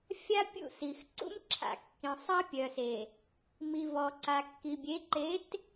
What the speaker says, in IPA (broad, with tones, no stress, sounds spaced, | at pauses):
fʲ a˦ pʲ ṵ˦˨ s i˨ x ǀ ṵ˦ m ǁʰ a̰˨ kː ĩ˨ sˤ a˦ pʲ œ˨ s e˨ | m i˨ v ɔ˨ ǀ a˨ kː i˨ bʲ e˨˦ ǃ e˨˦ t